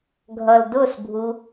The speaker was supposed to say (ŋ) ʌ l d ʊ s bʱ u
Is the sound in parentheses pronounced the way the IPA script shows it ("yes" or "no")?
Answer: no